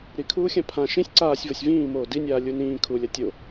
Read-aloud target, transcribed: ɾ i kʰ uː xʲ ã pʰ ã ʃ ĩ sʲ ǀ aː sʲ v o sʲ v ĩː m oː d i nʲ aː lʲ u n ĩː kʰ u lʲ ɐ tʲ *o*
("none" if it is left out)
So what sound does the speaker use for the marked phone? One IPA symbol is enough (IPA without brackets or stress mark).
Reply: o